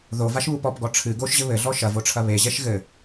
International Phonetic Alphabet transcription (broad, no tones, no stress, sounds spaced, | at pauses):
ð o v a ʃ β u p ɔ p ɡ ɔ ʈ͡ʂʰ ɨ ɡ o ʃ ʑ ɘ β ɘ ɮ ɔ ʃ ɐ v o ʈ͡ʂʰ ɐ β e ʑ ɛ ʃ ɣ ɘ